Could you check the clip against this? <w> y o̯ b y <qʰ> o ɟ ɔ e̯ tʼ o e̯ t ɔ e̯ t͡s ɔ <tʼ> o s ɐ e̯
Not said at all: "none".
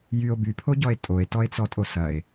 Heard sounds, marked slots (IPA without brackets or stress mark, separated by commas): j, pʰ, tʼ